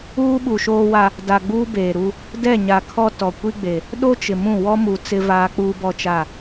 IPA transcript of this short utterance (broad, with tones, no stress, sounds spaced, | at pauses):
uː˦ ɓ u˨ ʃ oː˦ w a˦ | d a˨ ɡ͡b uː˦ b eː˨ ɾ u˦ | d ɛ˦˨ ɲ a˨ kʰ ɔ˦ t ɔ˨ kʷ i˦ ɡ͡b e˨ | ɗ o˦ t͡ʃ ɪ˨ m ũ˦˨ w ɔ˦ m u˨ t͡s ɪ˦ v aː˦ k͡p uː˦ b ɔ˦ t͡ʃ a˦˨